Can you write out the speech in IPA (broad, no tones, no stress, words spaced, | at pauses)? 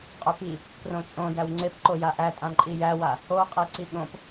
qʼɵpi | krõt͡ʃʼõdæw ŋ͡ǀepǃo jaʔæ tʼãǃʼijæwa | oqʼe ǀiɠõp